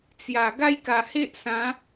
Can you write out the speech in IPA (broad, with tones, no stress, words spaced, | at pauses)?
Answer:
t͡sja˨˩ ɡa˦jka˨˩he˦ʔsã˨˦